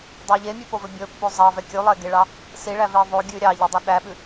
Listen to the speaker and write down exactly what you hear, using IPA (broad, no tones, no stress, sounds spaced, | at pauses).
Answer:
dˤ o ʎ e mʲ ʉ p o v ɵ bʲ ɵ pː o zˤ ɑ v ɛ kʲ ʉ lˠ e ɡ e ɭ ɑ | s i ɭ æ v e ðˤ o ɡʲ ʉ ɾʲ ɑ ʎ ɛ dˤ o ɗ æ ɓ ʉ